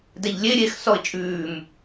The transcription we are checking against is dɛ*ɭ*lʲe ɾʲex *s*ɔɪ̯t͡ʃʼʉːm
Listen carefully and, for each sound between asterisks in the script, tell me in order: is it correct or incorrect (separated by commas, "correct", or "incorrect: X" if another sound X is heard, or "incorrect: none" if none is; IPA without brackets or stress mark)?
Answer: incorrect: ʎ, correct